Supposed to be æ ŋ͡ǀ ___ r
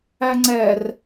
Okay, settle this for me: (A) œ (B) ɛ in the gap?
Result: B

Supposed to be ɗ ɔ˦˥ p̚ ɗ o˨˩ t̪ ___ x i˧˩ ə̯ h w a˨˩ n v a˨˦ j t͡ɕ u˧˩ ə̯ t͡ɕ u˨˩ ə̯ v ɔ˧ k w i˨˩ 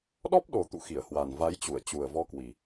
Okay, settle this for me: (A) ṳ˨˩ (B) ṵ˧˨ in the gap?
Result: B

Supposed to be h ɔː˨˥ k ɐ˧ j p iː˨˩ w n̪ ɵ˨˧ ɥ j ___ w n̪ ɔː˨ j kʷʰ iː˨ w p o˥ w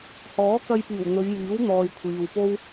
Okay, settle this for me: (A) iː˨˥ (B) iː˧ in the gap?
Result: A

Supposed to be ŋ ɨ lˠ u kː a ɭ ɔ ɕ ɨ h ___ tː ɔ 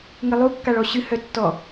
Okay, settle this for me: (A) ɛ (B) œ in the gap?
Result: B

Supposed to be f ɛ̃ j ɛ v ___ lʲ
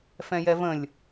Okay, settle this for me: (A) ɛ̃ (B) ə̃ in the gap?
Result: B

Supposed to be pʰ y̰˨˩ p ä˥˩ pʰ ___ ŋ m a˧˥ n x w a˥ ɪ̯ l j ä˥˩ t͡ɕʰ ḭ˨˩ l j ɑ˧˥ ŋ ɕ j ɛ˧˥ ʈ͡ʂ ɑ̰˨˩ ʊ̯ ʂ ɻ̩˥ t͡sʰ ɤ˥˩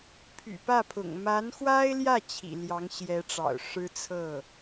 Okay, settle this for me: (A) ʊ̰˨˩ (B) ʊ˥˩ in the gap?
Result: A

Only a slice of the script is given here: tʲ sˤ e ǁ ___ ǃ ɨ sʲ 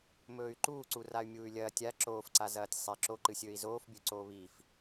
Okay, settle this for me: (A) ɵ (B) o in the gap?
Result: B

